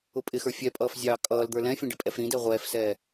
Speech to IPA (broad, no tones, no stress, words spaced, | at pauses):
ʊpʼɪxə˞ fʲɛpʼʌːf zʲɑːkʼʌːld̪ə˞ lɛ̃fʲɛ̃ ɖɪpʼɛfɾĩdɛ ʁʷɛːfsɛː